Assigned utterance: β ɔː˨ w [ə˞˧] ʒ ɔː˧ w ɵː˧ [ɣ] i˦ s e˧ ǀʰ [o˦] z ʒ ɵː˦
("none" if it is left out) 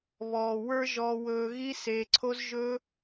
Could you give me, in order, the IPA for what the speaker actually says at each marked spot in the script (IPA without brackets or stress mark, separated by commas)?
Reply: ə˞˧, ɣ, o˦